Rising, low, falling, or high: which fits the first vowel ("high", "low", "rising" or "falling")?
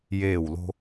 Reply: falling